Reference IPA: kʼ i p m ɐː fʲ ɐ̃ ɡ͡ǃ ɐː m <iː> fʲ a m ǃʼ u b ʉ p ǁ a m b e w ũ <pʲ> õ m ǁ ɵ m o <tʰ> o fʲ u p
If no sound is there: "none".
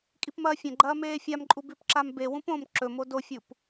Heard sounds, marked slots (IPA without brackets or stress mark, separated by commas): eː, p, d